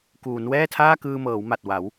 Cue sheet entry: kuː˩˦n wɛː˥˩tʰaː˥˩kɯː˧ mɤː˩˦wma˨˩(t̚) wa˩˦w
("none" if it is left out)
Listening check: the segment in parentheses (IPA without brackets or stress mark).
t̚